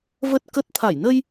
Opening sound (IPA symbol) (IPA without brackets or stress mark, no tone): v